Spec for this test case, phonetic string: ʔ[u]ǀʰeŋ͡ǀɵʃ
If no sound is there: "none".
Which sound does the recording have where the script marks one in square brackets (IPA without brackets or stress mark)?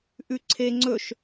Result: ʉ